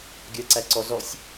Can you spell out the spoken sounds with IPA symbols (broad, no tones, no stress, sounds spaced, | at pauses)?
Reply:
ɡʲ ɜ ǀ æ ǀ ɔ z ɔ sʲ